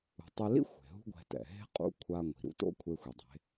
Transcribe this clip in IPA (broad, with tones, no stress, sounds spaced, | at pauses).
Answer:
ṳ˩˧ tˤ e˧ l ḭ˥ xʷ e̤˩ ɦ ṳ˥ ɡʷ ɛ̤˧ t ɛ̰˩ ɦ e̤˥ qʼ ṵ˧˥ kʷʰ a˧ ŋʷ i̤˩ ɾ ṵ˥ t o̰˥ kʷʰ e˧ xʷ i˩ dˤ e̤˩˧